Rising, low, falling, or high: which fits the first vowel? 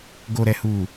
low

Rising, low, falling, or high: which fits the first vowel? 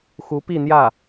rising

